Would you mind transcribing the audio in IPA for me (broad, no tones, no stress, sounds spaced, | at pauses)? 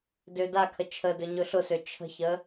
d ø d a kʰ ə t͡ʃʰ ə d ɵ ɲ ɵ ɬ ʊ s ø t͡ʃʰ ə̤ ç ə